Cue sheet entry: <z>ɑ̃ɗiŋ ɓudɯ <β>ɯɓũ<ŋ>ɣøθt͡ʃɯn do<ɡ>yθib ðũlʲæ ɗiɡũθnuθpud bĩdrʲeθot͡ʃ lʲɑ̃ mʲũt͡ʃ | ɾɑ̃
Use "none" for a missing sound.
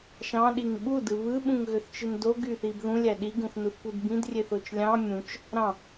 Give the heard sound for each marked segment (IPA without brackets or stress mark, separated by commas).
ʃ, β, ŋ, ɡ